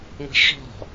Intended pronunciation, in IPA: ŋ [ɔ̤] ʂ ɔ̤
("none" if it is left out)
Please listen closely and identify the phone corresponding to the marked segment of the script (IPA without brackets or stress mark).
ə̤